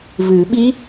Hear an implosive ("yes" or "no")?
yes